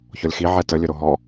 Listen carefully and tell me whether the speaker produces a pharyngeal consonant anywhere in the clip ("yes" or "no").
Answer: yes